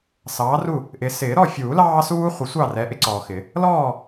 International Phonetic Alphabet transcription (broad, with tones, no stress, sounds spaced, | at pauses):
s ɑː˨˦ r u˦˨ | ʔ ɪː˨ s ɪː˨˩˦ ɾ ɔ˦˨ fʲ uː˨˩˦ l ɑː˦ s uː˦ χʷ ɪ˨˩˦ sʷ ɑ˦˨ r ɛ˨˦ ʔ ɪ˨˦ ǀ ɔː˨ x ɪ˨˩˦ | l ɔː˦˨